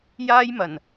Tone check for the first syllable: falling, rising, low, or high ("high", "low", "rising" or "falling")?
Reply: high